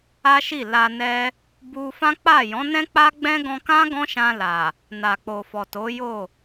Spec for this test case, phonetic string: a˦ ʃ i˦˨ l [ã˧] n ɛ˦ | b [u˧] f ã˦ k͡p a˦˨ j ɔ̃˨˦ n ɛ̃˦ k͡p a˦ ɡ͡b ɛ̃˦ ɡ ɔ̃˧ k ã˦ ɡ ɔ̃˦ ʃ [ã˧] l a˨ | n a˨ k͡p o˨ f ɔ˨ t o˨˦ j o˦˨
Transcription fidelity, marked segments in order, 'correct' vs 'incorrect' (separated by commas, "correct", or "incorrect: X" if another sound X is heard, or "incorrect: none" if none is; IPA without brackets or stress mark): incorrect: a˧, correct, correct